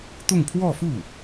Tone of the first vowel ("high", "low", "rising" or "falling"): falling